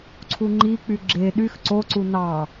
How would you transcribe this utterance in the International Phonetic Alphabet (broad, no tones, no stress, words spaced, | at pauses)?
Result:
ǀʰuŋ͡ǃik͡py ɡ͡ǁe ɗyx ǀoǀu nɑ